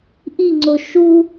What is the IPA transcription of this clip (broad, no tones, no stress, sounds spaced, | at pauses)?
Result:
ʔ i ŋ͡ǀ o ʃ u